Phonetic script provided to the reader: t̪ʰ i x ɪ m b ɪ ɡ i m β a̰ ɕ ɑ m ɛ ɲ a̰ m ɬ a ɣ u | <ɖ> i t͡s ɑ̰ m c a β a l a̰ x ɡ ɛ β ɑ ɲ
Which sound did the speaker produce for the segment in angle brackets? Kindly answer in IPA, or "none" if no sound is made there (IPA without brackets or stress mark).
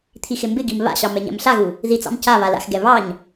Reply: ð